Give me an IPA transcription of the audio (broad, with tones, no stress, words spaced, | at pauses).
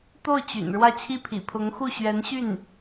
t̪o˥˩ʊ̯ t͡ɕy̰˨˩n ɻwä˥˧t͡ɕʰi˥˩ pʰḭ˨˩pʰʊ˧˥ŋxu˥˩ ɕɥɛ˧˥nɕy˥˩n